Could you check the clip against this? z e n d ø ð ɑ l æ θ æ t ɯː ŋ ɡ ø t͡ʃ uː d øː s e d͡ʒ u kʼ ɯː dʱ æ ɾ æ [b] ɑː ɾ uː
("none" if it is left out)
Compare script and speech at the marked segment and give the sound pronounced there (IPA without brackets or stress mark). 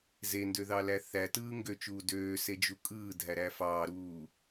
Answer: f